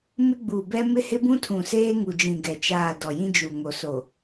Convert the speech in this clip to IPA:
m ɪ˦ ɡ͡b u˨ b ɛ˦ m ɪ˦ h ɪ˦ b ũ˦ tʰ ũ˨ s eː˦ ŋ u˨ d͡ʒ ĩ˨ ɡ ɛ˨ t͡ʃ aː˦˨ d ɔ˨ j ĩ˦ d͡ʒ u˨ ŋ o˨ s o˨

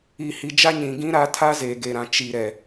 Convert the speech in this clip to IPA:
iː˨ h i˨ d͡ʒ a˦ ɲ ĩ˨ ɡ ĩ˦ ɾ a˦ tʰ a˦ z e˨ ɡ e˨ ɾ ã˨ t͡ʃ i˨ ɾ ɛ˨

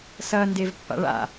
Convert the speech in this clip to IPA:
s ɐː n d e v pː a̰ ɭ a̰

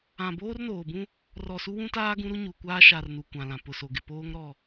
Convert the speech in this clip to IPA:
ã˨ b oː˦ r n oː˨ b ũ˦ | r ɔ˨ s u˦ w ũ˦ t aː˦ ɡ ũ˦ ɾ u˦ ɲ u˨ kʷ aː˦ ʃ a˨ r n u˨ kʷ ã˨ l ã˨ p ʊ˨ s o˨ ɡ ɪ˨ p oː˦ ŋ ɾ ɔ˦˨

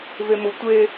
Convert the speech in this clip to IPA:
v e m ʊ tʷ e

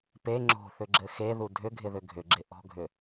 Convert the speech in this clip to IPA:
p e ŋ͡ǁ o̤ θ ʏ ɡ͡ǁ ɘ x e ð u dʱ ʏ ɡʱ ɪ ð ʏ ɡʱ ʏ ɡ͡ǁ ɪ ʔ ɔ̤ ɡʱ ʏ

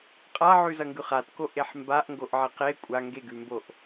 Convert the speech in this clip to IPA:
qʼ a ʕ ʉ z ɐ ŋ ɡ ʉ χ a t k o ʔ e ħ m b a ʔ ŋ ɡ o ʔ ʕ e q e kʷʼ a ŋ ɡ e ɡ ʉ m b o ʔ

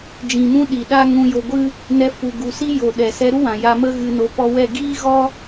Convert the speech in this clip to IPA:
d͡ʒ ĩ˨ m ũ˧ ɗ i˨ ɗ a˦ ŋ ũ˧ j o˧ ɡʷ ɨ˦ | n ɛ˧ f u˨ ɡ u˨ s i˦ j o˨ ɗ ɛ˨ s ɛ˧ ɾ u˦ w ã˨ j a˧ m ə˦ ɣ ɨ˧ n o˨˦ p ɔ˧ w ɛ˦˨ ɡ iː˦ ɣ ɔ˦

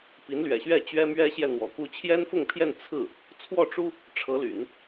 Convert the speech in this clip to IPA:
p i˧˥ n l ɥ ɛ̰˨˩ ɕ ɥ ɛ˥˩ t͡ɕ ɥ ɛ˥ m ɥ ɛ˥ ɕ j ɛ˥˩ n̪ w ɔ̰˨˩ k u˥˩ t͡ɕʰ j ɛ˥ n f ʊ˥˧ ŋ pʰ j ɛ˥˧ n t͡sʰ ɹ̩˥˩ | t͡sʰ w ɔ˥˩ ʈ͡ʂ u˥ | ʈ͡ʂʰ ɤ˧˥ l y̰˨˩˦ n

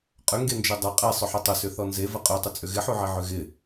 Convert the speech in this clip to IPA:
qʼ ʏ ŋ ɡ e n d͡ʒ ø dˤ ɐ qʼ e sˤ ʏ ħ ʏ tˤ ʏ s ʏ θ ɔ n z e v ɐ qʼ ø tˤ ɪ t͡sʼ ʏ ɣ ɪ ħ u ʕ e ʕ ʏ ɣ ɪ

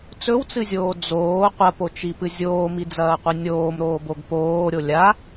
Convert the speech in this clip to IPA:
t͡s ɵ w t͡s ɨ zʲ oː d͡z oː qʷ ɐ p o t͡ʃ i p ɨ zʲ oː m i d͡z ɐː qʷ ɨ nʲ oː m ɾ oː b o ɡ p oː ɾʲ o lʲ a

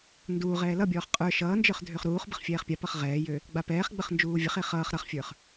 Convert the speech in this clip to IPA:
n d uː ʁ ɛː l ʌ bʲ ɔː χ qʼ ə˞ ʃ ʌː n d͡ʒ ə˞ χ dʱ ø χ ɾ uː χ b ə χ fʲ ɛː χ pʲ a p ʌ χ ʁ ɛː j ø | ɡ͡b a p ɛː χ ɡ͡b ə χ n d͡ʒ uː vʲ ə χ e χ ʌː χ ɾ ʌ χ fʲ ə˞ χ

